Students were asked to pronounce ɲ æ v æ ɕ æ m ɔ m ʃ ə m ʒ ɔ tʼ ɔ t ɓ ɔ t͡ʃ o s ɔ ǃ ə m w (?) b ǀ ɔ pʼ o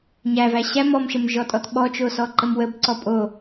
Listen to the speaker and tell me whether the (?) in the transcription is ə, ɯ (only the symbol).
ə